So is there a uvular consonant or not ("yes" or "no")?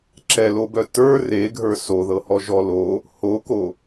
no